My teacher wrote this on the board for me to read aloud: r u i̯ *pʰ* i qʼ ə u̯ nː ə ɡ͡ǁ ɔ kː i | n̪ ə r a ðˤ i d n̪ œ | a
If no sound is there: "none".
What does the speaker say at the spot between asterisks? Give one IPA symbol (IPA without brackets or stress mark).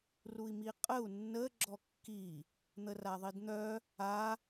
m